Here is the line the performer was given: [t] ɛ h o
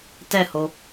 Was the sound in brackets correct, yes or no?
yes